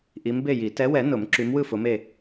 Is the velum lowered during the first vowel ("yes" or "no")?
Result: no